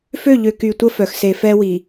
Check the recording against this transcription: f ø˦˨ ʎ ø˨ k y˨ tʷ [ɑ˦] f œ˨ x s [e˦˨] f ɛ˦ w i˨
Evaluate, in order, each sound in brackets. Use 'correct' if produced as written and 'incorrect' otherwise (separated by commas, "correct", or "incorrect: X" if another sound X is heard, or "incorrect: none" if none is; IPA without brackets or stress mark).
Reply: incorrect: ə˦, incorrect: e˨